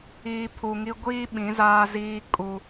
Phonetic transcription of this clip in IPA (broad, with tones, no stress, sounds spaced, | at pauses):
iː˨ pʰ u˨ ŋ i˦ ɡʷ iː˦ ɓ ĩ˨˦ z aː˦ z iː˦ kʼ u˦